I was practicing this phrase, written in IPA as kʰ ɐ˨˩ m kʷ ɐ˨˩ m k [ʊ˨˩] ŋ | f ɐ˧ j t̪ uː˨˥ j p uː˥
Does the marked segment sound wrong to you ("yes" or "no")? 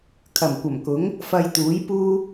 yes